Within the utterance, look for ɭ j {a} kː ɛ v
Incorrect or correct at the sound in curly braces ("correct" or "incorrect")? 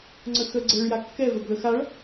correct